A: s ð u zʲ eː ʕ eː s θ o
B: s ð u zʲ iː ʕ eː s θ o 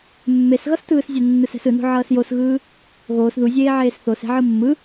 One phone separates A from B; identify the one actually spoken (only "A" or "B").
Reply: A